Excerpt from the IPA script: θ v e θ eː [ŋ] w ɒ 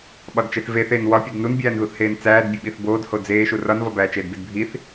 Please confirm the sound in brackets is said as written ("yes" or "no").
no